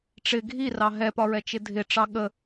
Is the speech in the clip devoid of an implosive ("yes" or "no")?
no